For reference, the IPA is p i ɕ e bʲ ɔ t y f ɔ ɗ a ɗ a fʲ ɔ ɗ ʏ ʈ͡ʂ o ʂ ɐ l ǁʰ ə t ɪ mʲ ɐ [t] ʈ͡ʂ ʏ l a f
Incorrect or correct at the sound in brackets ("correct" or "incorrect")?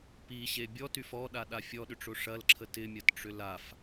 correct